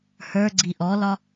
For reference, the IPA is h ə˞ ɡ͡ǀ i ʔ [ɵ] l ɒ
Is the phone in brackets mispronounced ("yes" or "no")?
yes